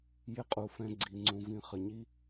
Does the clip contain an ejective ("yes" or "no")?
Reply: yes